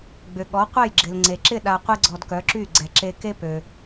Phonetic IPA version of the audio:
ɡ͡b ʏ˩ ɠ ɔ˩˥ qʷ ɛ˥˩ j ɡ͡ǁ ɪ˩ l ŋ͡ǀ e˩ ǁ ɪ˥˩ ɗ a˧ qʷ e˥ ɡ͡ǀ ɔ˧ d k œ˩˥ ǁ y˥˩ ɡ͡ǀ ɛ˩ ǁ e˧ k e˥ p ø˩

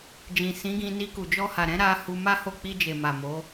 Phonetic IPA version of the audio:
d͡ʒ ĩ˨ s ĩ˨˦ ɡ ĩ˧ n i˧ k u˨ d͡ʒ ɔ˧ h a˨ ɾ ɛ̃˨˦ ɾ a˦ h u˧ m a˦ h o˦˨ k͡p i˧ d͡ʒ e˨ m a˨ m o˨˦

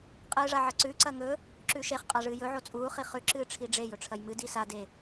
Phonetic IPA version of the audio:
qʼ ɨː ʐ a ʕ ɐ ǀ ʉ ǀ ɐ ŋ ɵ | ǁ ʉ ʃ e χ qʼ a ʐ ɨː j ɵ ʕ o t͡sʼ uː χ i χ ʉ ǁ ɨː ʈ͡ʂʰ i ɖ͡ʐ e j ɵ ʈ͡ʂʰ ɐ j m ɨ d i s a d e

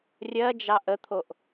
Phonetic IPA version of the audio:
rʲ ɜ d͡ʒ ɑ ʔ ə t̪ʰ o ʔ

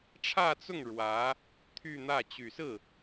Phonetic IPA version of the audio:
ʈ͡ʂʰ ä˥˧ t͡s ʊ˥˩ ŋ ɻ w ä˧˥ | t̪ʰ y˥˧ n̪ ä˥˩ t͡ɕ y˨˩ s ɹ̩˥˩

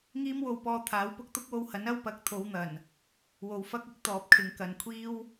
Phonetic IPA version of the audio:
ŋ iː˥ m w o˧ w p ɔː˧ t̪ʰ aː˨˥ w p ʊ˥ k̚ t̪ ʊ˥ k̚ w o˧ w h ɐ˨˥ n ɐ˥ w p ɐ˨˥ k̚ t̪ʰ o˨˧ w n̪ ɐ˨˩ n | w o˨ w f ɐ˥ k̚ ɪ˥ k̚ t̪ ɔː˨ p̚ kʰ ɪ˨˧ ŋ k ɐ˨ n kʷʰ iː˥ w

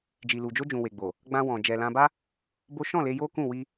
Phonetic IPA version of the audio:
d͡ʒ i˨ l u˨ d͡ʒ o˧ d͡ʒ ũ˨ w e˨ ɡ͡b o˨ | ɡ͡b ã˧ w ɔ̃˨ d͡ʒ ɛ˨ l ã˧ b a˦ | b o˦ ʃ ɔ̃˦˨ l e˧ j o˦ k ũ˦˨ w i˧

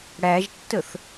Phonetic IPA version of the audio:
ɽ æ ʒ tː ə θ

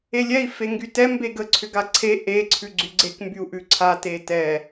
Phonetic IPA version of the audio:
e lʲ ɛ i̯ f e ŋ ɡ y t ɛ m b e ɡ ə ǀʰ ʏ ɡ a ǀʰ e ʔ e ǀʰ ʉ ɡ͡ǀ y ɡ͡ǀ e k m b y u̯ ʔ ʉ ǀʰ a t e t ɛ

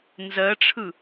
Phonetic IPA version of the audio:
n z ɜ ʈ͡ʂʰ ɯ

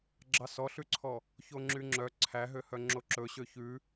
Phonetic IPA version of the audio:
ɡ͡ǁ ɑ s ɔ ɬ ʉ ǀʰ ɔ | ç o ŋ͡ǁ y ŋ͡ǁ œ ǀʰ æ ɦ ø h œ ŋ͡ǁ o ǁ ɵ ɕ ø ç ʉ

